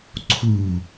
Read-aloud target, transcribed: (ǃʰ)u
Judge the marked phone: incorrect: ǀʰ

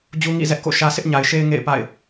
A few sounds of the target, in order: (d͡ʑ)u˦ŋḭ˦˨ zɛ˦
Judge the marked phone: correct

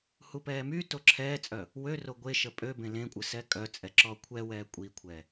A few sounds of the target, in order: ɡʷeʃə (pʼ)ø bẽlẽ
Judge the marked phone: correct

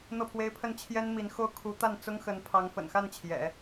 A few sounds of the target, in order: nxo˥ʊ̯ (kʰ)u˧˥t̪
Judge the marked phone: correct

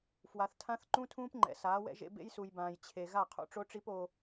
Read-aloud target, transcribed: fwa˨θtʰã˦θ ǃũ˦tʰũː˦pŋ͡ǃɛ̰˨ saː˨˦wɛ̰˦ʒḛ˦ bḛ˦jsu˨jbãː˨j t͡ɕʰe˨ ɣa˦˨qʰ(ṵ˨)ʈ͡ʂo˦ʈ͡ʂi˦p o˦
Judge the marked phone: incorrect: ṵ˦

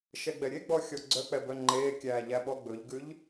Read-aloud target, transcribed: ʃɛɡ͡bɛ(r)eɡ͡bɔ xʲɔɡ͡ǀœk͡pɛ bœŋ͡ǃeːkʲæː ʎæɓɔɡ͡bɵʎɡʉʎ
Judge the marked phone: incorrect: ɾʲ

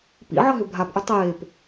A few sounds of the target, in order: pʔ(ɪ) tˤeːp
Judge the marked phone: incorrect: ʏ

